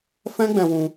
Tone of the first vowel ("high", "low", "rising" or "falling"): high